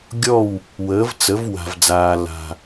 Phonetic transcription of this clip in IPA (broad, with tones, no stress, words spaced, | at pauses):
ɡʲɔ˥˩w | wəː˩˥vt͡sə˩˥v wa̤˩vd͡zaː˩ la̤˩